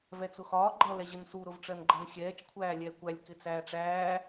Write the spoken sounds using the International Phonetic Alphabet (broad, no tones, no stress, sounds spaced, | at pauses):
v ɛ t͡s ʊ x ɒː ɡ͡ǃ ʌ l ɛ ʑ ə n s u ɾ ʊ v ʈ͡ʂ ɜ n ɡ͡ǃ ʌ n xʲ ɛː t͡ʃ kʷʰ æː lʲ ɛː kʷ æ lʲ k ɪ t͡s æː ʈ͡ʂ æː